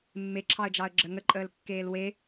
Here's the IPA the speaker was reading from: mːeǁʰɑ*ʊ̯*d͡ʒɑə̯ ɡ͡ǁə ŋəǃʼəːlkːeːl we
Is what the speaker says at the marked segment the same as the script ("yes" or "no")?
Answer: no